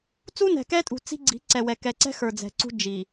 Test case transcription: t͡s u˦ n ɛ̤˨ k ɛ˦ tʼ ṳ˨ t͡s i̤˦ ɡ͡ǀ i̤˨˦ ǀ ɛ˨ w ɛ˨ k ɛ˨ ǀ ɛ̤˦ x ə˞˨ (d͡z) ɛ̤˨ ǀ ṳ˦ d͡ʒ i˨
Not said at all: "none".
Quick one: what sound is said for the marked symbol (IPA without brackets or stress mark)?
d͡z